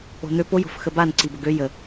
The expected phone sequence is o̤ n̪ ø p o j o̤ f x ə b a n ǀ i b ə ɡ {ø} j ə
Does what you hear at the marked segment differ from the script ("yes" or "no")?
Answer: no